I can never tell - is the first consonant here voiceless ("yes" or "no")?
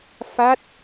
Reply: yes